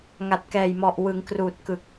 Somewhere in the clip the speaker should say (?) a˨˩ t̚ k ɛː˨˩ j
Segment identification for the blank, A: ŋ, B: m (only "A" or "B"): A